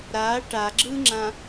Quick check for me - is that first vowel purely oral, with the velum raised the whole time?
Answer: yes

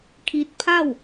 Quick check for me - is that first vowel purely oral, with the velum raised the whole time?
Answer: yes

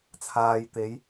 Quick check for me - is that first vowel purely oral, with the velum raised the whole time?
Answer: yes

